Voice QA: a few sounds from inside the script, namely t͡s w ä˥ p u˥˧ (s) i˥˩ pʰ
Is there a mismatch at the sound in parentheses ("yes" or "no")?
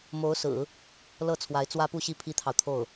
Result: yes